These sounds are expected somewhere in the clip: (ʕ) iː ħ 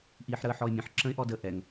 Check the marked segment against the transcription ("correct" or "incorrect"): incorrect